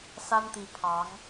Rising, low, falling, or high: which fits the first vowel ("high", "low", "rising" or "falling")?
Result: high